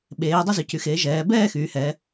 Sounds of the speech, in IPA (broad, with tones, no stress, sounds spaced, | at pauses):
ɓ eː˩˧ dˤ y˧ z y˩˧ c y˩˧ x eː˩˧ ʒ ɛː˩˧ b ɛː˥˧ x yː˩˧ h ɛː˩˧